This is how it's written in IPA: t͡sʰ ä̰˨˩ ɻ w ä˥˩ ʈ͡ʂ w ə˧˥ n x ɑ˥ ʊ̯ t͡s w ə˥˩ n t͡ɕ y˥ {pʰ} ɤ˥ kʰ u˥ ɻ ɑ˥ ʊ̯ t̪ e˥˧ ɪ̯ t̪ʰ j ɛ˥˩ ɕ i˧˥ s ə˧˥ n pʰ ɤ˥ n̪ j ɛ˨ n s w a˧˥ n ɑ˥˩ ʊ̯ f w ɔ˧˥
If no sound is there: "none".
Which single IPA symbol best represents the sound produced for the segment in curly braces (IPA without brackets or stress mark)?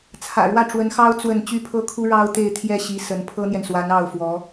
pʰ